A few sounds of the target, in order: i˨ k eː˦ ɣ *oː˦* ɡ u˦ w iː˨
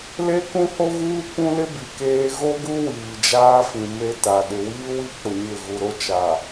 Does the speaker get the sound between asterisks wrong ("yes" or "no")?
yes